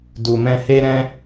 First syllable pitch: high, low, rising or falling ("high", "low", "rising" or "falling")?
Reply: low